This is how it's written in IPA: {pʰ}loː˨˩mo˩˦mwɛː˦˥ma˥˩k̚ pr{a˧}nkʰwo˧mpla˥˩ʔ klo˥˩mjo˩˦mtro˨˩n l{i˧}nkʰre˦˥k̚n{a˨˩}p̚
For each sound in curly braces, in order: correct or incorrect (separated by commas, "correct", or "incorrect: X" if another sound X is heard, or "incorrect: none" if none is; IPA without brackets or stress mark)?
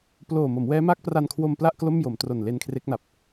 incorrect: p, correct, incorrect: e˧, correct